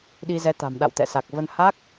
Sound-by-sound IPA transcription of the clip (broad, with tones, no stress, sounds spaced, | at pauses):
ɗ i˧ z ɛ˨˦ t̪ a̤˨˩ m ɗ a̰˧˨ w t̪ ɛ̰˧˨ s a˨˩ k̚ v ə˧ n h a˦˥ k̚